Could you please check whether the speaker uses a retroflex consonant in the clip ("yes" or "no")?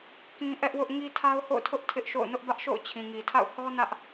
no